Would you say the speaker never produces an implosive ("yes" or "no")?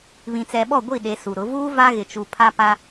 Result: no